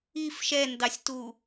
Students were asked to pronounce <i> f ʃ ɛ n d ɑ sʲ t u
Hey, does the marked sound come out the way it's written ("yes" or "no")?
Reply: yes